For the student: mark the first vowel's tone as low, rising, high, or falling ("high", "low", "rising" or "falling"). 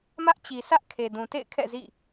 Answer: high